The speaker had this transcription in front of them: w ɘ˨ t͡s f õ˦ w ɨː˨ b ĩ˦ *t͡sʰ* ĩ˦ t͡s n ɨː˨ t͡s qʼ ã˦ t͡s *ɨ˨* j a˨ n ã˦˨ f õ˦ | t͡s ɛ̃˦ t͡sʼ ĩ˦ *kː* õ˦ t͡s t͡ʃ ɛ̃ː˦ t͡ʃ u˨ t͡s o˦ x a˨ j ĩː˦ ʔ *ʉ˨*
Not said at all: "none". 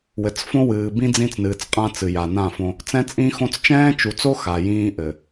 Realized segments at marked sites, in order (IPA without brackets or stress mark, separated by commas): d͡z, ɨ˨, x, ɘ˨